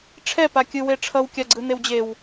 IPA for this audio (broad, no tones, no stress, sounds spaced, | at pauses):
ʈ͡ʂʰ ɛ p a kʲ ɯ w e ʈ͡ʂʰ ʌ w kʲ a ɡ͡ǀ ɯ n e w d͡ʑ e w